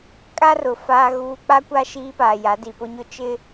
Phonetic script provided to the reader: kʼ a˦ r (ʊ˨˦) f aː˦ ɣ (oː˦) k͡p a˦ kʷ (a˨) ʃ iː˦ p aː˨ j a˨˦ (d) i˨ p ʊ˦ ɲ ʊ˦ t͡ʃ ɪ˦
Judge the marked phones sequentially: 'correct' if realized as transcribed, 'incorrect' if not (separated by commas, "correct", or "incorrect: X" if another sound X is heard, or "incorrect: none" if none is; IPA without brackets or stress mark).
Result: incorrect: ʊ˨, incorrect: uː˦, incorrect: a˦, correct